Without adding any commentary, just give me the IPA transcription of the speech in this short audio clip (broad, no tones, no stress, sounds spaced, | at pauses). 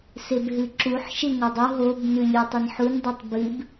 s e b ɦ ɨ ǁ u ħ ʃ e ŋ o dˤ u ɦ o b n ʉ lʲ u tˤ ɐ n ħ u n dˤ ʉ tˤ b ɨ b